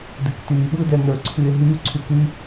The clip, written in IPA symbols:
d ɨ k t yː ɓ ɯ d ɛ n ə˞ ǀʰ y e̯ ɦ y ǀʰ y k y

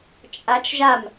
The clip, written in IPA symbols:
t͡ʃʼ a t͡ʃ ʒ a m

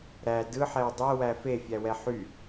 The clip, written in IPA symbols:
ɾ æ d ɯ ħ ɛ w dˤ ɛ w æ f e fʲ æ w ɛ ħ y

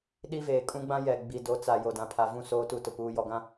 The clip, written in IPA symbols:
ɗ i˦ v eː˨ kʼ ũ˦ ɡ͡b ã˦ j ɛ˨ ɡ͡b i˨ d o˨˦ t͡s a˨ j o˨ d ã˨ pʰ a˨ v ũ˦˨ s oː˦ t u˦ t ʊ˨ p uː˨ j ɔ˨ ɡ ã˦

